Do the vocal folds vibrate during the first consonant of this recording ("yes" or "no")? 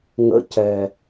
yes